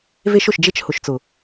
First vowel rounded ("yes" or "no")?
no